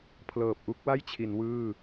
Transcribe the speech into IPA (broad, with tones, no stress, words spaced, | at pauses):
pʰlɤː˨˩p̚ʔu˥˩k̚wa˥˩jt͡ɕʰi˩˦n wɯː˥˩